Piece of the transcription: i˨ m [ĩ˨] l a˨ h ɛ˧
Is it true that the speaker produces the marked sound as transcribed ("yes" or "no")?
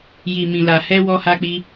yes